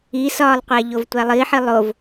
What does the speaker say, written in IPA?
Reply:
i s ɒː lˠ qʷ æ ʎ o v tʷ æ lˠ i ħ i lˠ o v

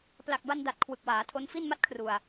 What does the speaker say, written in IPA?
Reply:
p l a˨˩ k̚ b a˧ n d a˨˩ t̚ kʰ w ɯ˨˩ k̚ w aː˩˦ tʰ o˦˥ n f i˥˩ n m a˥˩ t̚ kʰ r u˨˩ a̯

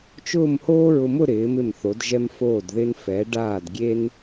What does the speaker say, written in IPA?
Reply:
t͡ʃ ʊː˥˧ m h oː˥ ɹ ʊ˧ m ʊ˥˧ ɾ ɪː˩˧ m ɪ˧˩ m θ o˩˧ d ʒ ɛ˧ m f oː˧˩ d ð ɪ˧ n f ɛ˩˧ ɖ aː˧˩ d ɡʲ e˧ n

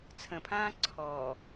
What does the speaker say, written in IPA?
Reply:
t͡sʰ ə̃ pʰ ãː ǀʰ ɔː

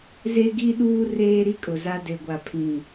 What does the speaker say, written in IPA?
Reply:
z e˦ ɡ i˦ ɗ uː˦ r eː˦ ɾ i˦ kʼ ʊ˨ z a˦ d e˨ ɡʷ a˨ pʰ ĩ˨

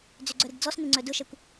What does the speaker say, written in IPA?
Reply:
d͡z ʏ ɡ͡ǀ œ ɾ ɪ ɡ d͡z ɔ s n ɪ ŋ͡ǀ œ d ʊ ʃ ɛ kʷ

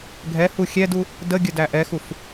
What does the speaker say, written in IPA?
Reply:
ɡʱ ɛ h u xʲ ɛ d u | d ə ɡʲ ə d æ ʔ ɛ x u f

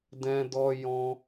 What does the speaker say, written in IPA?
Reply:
d ɛ̃˧ d ɔ˧ j ɔ̃˧

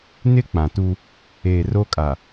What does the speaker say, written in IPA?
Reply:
n ɪ˦ k͡p ã˨ t u˦ | eː˨ r o˦ kʼ a˨

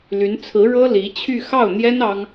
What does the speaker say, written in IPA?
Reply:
l y˧˥ n t͡sʰ ɹ̩˧˥ ɻ ɤ˥ l i˧˥ t͡ɕʰ y˥˧ x ɑ˥˩ ʊ̯ n̪ j ɛ˥ n ɑ˥ ŋ

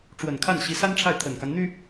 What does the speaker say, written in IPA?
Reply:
ʈ͡ʂ w ə˨˩ n kʰ a˥˩ n ɕ i˧˥ s a˥ n ʈ͡ʂʰ a˥˩ ɪ̯ t̪ʰ ə˨˩ n k a˦ n n̪ y˥

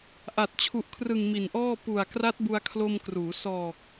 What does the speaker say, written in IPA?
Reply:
ʔ a˨˩ t̚ t͡ɕʰ u˨˩ ʔ kʰ r ɯ˨˩ ŋ m i˨˩ n ʔ ɔː˥˩ p u˨˩ a̯ k r a˦˥ t̚ b u˧ a̯ kʰ l o˧ m k r uː˩˦ s ɔː˨˩ k̚

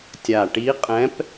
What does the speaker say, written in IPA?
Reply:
tʲ a˨˩ ʈ i˧˥ qʼ ɛ̃˧˥ p

